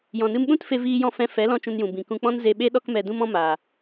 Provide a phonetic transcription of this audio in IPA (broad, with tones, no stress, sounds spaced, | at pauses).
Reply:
j ɔ̃˨ n ɨ˧ m ɓ ũ˦ t f e˦ v iː˦ j ɔ̃˦ f ɛ̃˧ f ɛ˨˦ l ɔ̃˧ t͡ʃ ũ˧ n j ũ˨ b ĩ˨ k ũ˧ k͡p ɔ̃˦ n z e˧ ɓ e˦ ɗ ɔ˦ k m ɛ˧ d ũ˦ m ɔ̃˦ m aː˨